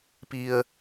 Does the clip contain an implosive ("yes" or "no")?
no